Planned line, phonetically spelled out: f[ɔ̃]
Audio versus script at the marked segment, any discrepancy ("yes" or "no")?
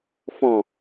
no